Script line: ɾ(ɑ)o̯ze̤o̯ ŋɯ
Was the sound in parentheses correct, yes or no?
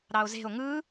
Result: yes